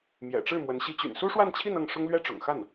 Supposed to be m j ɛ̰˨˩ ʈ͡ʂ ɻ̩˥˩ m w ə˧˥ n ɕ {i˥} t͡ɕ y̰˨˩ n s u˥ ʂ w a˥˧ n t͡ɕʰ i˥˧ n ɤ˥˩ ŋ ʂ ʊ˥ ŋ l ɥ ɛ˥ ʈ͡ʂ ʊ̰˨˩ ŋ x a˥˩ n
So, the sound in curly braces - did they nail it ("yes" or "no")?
yes